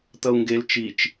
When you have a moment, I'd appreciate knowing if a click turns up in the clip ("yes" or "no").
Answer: no